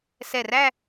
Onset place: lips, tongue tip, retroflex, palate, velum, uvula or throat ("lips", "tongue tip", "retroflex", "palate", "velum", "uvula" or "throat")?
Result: tongue tip